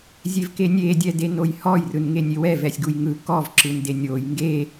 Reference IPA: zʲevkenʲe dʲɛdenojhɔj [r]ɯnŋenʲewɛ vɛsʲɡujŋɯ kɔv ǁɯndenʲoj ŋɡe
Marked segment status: correct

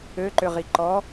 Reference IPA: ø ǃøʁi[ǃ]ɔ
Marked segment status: correct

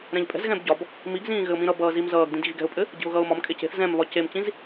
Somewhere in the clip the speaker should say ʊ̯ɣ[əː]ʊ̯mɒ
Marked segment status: incorrect: ʌː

